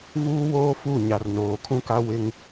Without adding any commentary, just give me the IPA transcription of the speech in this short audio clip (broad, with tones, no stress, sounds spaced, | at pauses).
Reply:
v uː˦ w oː˦ f u˦˨ ɲ a˨ r n oː˨ kʰ ũ˦ k a˦ w ɪ˦ ŋ